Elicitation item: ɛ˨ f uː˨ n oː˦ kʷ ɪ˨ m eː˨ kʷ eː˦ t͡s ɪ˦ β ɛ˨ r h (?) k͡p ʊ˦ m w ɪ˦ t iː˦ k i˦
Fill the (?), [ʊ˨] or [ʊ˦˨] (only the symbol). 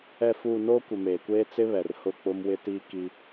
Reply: ʊ˦˨